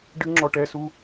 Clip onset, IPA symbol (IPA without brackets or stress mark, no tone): ɖ